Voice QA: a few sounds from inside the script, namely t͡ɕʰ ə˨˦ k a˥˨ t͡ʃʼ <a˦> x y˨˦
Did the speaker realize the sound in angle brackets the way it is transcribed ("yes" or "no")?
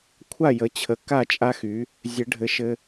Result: yes